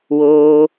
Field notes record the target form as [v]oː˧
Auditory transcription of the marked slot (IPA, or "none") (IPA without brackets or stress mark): w